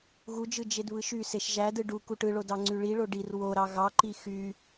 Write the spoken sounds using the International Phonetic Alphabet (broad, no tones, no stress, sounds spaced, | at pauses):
ɣ u d͡ʒ ɯ d͡ʒ e d β ɯ ʃ y s e ʃ ʒ æ d ɯ ɖ u k u ʈ ɯ ɭ o d ɑ ŋ͡ǀ y ɭ i ɭ o ɖ i r w o ɾ ɑ ɣ ɑ ǃ i x y